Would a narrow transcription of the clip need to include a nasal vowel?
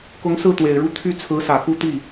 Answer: no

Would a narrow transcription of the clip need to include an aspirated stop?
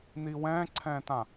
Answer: yes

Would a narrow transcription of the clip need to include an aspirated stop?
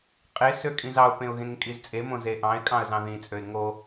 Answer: no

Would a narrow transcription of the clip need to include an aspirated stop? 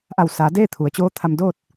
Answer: yes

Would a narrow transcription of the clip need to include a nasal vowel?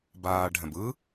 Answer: yes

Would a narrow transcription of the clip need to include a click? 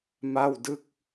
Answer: no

